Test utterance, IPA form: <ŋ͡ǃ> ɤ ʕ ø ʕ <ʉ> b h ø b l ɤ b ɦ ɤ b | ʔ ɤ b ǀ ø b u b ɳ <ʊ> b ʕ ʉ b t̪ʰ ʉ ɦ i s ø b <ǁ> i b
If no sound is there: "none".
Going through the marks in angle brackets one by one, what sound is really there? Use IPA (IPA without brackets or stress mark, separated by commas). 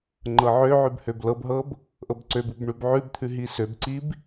ŋ͡ǃ, ʉ, ʉ, ǀ